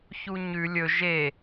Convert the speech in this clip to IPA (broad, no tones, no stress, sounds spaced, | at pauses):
ç u ɲ ʉ lʲ ɵ ʒ e